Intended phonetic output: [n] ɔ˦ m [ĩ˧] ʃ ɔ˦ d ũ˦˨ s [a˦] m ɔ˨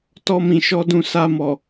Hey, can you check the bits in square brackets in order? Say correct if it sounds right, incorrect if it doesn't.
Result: incorrect: t, correct, incorrect: a˧

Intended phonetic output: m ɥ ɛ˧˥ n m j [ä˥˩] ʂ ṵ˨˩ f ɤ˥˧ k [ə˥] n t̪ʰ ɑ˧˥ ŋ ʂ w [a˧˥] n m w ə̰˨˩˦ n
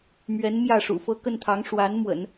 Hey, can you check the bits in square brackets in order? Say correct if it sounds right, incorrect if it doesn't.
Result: correct, incorrect: ə˥˩, correct

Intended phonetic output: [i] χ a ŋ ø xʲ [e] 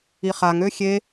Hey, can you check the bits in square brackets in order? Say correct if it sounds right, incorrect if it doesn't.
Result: correct, correct

